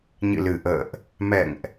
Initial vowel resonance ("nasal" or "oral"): oral